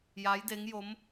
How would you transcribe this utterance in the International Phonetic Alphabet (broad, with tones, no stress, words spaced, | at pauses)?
ja˧˥jde˧˥ŋjo˧˥m